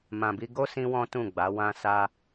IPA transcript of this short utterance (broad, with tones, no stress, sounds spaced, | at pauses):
m ã˨ b i˧ ɡ o˦ s ĩ˦ w ɔ̃˦ t ũ˦˨ ɡ͡b a˨˦ w ã˧ s a˧